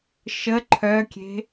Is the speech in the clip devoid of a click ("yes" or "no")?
no